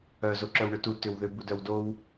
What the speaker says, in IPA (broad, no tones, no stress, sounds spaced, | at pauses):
œ z o ǁ œ w ɳ ʏ t u t ʏ w ð ʏ b u d œ w d o w